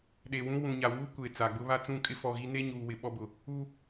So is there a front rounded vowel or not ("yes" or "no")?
no